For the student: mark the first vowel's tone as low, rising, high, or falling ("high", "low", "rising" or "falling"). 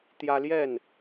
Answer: high